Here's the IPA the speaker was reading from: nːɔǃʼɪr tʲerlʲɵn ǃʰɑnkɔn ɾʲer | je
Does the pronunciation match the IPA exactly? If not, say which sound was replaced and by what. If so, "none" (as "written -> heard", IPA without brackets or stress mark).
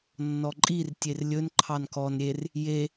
ɪ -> i